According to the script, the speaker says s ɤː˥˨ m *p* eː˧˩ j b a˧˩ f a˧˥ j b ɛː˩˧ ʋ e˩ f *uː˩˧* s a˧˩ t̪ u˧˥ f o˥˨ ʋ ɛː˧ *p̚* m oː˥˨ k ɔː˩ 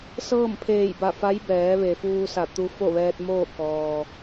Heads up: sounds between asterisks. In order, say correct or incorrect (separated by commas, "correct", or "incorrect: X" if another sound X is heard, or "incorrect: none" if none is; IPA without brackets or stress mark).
incorrect: pʰ, incorrect: uː˧, incorrect: t̚